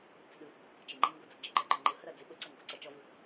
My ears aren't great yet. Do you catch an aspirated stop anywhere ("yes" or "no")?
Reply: no